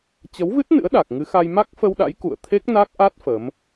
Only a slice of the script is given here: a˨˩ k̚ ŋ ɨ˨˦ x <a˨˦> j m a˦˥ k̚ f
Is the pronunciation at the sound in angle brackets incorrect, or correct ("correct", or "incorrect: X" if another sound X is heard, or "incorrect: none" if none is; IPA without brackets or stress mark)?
incorrect: a˧